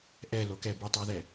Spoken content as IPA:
ʔ ɛ l o k ɛ b u tˤ a ð ɛ

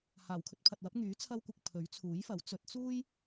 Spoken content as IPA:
h aː˨˩ w kʰ ɵ˧ t̚ pʰ ɐ˨ t̚ w ɐ˨˥ p̚ ŋ yː˨˥ t͡sʰ ɐ˧ w kʷ ɪ˨ k̚ pʰ ɵ˨˥ ɥ t͡sʰ uː˨˥ j f ɐ˨˥ w t͡s ɵ˨˥ t̚ t͡s uː˥ j

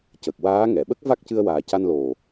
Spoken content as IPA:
c ə˨˩ k̚ w aː˧˥ ŋ ɛ˨˩˨ ɓ ə˦˥ k̚ v a˦˥ k̚ c ɨ˧ ə̯ w aː˨˩ c a˧ n l o˨˩

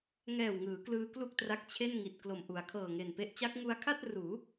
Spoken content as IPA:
ŋ ɛː˨˩ w ŋ ɯː˩˦ k l ɯː˦˥ k l u˥˩ k̚ t r a˦˥ k̚ t͡ɕʰ e˥˩ n ŋ i˨˩ t̚ k l o˨˩ m ʔ u˩˦ a̯ kʰ ɤː˨˩ ŋ e˨˩ n p e˦˥ ʔ t͡ɕ a˦˥ k̚ ŋ u˦˥ a̯ kʰ a˥˩ t̚ r uː˩˦

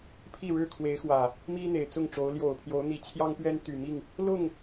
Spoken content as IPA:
pʰ i˥˨ ɻ ɻ̩˥˨ kʰ w e˨˦ ɪ̯ x w ä˨˩ | m i˦ n̪ e˨˩ ɪ̯ t͡s ʊ˥˨ ŋ ʈ͡ʂ o˨˦ ʊ̯ l j o˨˩ ʊ̯ pʰ j o˨˦ ʊ̯ n̪ i˨˩ t͡ɕʰ j ɑ˦ ŋ p ɥ ɛ˦ n t̪ y˨˩ m i˥˨ ŋ | l ʊ˥˨ ŋ

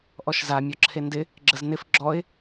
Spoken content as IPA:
ʔ ɔ ʃ z a mʲ ɔ ǁʰ e n d ɪ | ɡ͡ǁ ə z n ɪ f ɡ͡ǁ ɔ ɪ̯

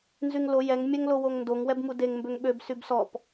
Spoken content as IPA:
n z y ŋ l o j ɛ ŋ mʲ ɛ ŋ l o w o ŋ n d o ŋ w ɛ b m u d e ŋ m b ø ŋ ɓ ø b s y b s ɔ p

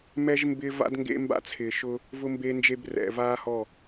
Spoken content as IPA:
m ɛ˦ ʒ m b ɪː˦ v a̰˦ d ŋ ɡ ḛ˦ m b a̰˦ t͡sʰ ɪː˨ ʃ ʊː˦ | v ʊ˦ m b e˦ n d͡ʒ e˦ b r ɛ̰˨ v aː˦ h ɔ˦˨

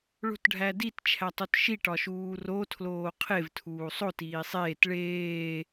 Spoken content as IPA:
ɭ o̤ t ɖʱ æ d i t t͡ʃʰ æ tˤ o t ʃ i ʈ ɒ ʃ uː r o tʰ l oː qʰ e v tʰ uː sˤ o t iː sˤ eː t ɭ eː

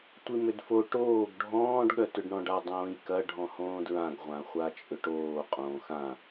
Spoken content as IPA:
tʷ i m ʏ d f o ʈ oː ɡ ɖʱ ɔ̃ː ɖ ɠ œ t ʏ ɖ ɳ ɔ̃ ɖ a dˤ õː j k ɐ ɖʱ ɔ̃ h õː d ɹ ã ɡ ʁʷ ã χʷ a t͡ʃʼ ʏ ʈ oː qʼ õː x ã

